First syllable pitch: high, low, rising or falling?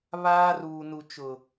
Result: high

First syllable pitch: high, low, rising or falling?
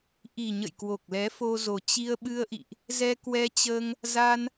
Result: low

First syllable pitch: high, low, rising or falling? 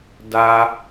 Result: high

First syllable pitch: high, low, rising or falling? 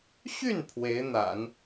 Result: falling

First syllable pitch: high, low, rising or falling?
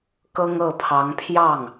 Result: high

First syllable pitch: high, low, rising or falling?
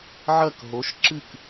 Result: falling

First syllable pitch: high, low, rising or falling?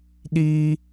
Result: high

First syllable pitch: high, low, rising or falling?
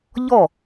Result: falling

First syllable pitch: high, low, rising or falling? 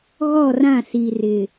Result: falling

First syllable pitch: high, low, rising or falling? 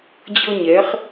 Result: high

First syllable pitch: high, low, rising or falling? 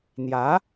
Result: rising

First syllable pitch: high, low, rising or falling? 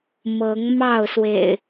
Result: rising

